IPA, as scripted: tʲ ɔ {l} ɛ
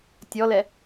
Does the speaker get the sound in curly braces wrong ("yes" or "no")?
no